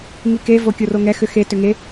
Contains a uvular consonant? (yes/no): no